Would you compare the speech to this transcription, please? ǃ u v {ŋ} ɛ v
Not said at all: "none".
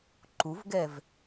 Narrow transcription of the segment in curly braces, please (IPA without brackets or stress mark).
ɡ